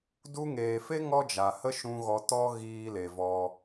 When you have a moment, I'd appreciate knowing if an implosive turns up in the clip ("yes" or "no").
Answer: no